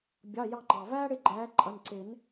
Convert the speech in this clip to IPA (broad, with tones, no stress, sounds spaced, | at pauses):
bʲ ɑ˩˧˩ j ɑ˦˨ ŋ͡ǃ ɑ˩ v æː˦ ɽ ɪ˦˨ ɡ͡ǃ æː˨˦ ǃʼ ʌ˩˧˩ n ǀ ɪ˨˩˦ n